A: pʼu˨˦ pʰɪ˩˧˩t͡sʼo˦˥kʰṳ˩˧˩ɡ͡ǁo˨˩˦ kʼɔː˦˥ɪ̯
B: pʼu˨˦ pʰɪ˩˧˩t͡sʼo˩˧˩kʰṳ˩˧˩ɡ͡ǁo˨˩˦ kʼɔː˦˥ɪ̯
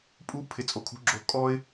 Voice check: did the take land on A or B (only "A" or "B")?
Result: B